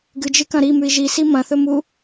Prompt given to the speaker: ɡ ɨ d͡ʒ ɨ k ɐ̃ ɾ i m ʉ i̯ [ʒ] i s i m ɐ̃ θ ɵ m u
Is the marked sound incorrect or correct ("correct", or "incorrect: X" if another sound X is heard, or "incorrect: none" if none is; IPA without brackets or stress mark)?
correct